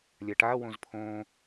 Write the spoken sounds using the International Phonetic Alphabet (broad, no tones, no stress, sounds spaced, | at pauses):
lʲ a ʈ a w õ z pʰ õ